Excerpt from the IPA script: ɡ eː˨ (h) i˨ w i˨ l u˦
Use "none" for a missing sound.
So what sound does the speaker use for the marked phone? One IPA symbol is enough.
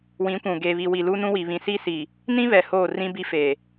β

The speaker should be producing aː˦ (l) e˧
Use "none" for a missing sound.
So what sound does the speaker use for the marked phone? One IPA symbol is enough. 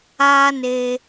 n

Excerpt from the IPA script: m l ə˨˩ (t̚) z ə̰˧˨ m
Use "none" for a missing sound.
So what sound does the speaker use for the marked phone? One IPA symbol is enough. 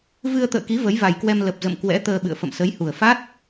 p̚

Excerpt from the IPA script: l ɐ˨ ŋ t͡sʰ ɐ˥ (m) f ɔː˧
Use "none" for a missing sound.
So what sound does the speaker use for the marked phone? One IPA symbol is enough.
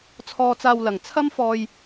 m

